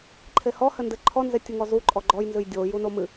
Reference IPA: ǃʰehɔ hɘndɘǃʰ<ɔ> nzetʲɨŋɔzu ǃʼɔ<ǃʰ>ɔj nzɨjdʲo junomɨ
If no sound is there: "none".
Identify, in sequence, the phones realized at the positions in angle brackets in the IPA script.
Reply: ɔ, ɡ͡ǃ

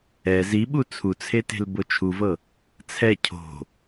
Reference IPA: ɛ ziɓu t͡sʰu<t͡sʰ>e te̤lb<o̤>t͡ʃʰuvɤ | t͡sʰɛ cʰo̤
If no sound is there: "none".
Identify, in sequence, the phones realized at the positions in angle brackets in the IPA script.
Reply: t͡sʰ, o

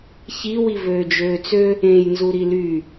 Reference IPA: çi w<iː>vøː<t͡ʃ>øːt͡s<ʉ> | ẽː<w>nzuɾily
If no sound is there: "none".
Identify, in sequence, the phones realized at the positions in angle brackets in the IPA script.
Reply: i, d͡ʒ, ø, j

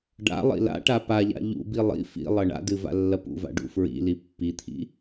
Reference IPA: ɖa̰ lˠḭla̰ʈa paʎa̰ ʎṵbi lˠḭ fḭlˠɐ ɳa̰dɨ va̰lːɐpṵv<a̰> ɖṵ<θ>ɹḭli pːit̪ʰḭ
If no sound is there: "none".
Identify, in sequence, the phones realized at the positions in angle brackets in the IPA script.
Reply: a̰, f

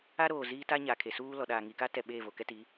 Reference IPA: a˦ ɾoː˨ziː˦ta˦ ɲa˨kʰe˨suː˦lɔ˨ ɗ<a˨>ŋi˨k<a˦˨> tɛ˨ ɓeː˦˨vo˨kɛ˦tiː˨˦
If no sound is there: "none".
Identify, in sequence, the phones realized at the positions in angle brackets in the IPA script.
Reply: aː˨, a˦

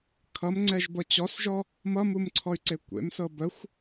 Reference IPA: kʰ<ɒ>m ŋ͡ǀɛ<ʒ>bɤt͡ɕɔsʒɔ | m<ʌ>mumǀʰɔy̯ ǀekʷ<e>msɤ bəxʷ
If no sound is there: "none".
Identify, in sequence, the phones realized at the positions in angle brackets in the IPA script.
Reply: ʌ, ʒ, ʌ, ḛ

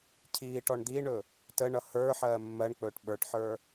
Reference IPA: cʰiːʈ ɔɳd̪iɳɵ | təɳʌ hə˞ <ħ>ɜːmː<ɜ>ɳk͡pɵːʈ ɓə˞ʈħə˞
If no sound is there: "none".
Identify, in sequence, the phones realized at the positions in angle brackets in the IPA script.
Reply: ħ, ɜ

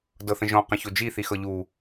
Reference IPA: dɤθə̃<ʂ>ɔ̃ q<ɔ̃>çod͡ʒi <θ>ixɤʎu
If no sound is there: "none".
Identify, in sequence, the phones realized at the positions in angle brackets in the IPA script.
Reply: ʒ, ə̃, θ

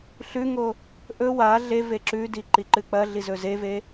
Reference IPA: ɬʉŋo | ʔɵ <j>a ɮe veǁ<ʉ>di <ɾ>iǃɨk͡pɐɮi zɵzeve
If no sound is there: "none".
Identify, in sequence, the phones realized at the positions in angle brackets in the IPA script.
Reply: w, ʉ, ǃ

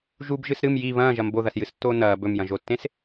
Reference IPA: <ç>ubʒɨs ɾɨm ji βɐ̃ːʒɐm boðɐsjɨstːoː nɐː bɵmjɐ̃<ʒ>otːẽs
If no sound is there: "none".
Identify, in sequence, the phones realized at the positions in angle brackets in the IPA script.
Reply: ʒ, ʒ

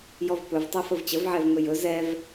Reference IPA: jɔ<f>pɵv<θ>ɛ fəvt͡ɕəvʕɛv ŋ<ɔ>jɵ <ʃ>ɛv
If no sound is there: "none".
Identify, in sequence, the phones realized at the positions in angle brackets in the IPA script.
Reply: v, tˤ, ɵ, z

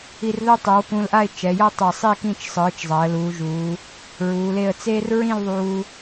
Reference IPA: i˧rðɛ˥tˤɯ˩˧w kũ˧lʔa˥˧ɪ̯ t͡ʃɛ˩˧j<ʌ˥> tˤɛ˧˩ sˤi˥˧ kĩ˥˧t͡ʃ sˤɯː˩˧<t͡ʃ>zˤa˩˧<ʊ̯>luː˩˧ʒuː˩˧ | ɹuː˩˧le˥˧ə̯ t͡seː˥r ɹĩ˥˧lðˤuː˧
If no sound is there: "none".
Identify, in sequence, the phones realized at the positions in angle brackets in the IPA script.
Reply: ʌ˥, t͡ʃ, ə̯

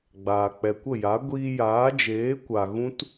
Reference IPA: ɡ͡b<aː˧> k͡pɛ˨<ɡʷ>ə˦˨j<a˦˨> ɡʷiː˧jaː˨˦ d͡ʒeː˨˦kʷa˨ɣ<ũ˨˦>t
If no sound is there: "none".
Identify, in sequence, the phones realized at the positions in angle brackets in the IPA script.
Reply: aː˨, kʷ, a˨˦, ũ˦

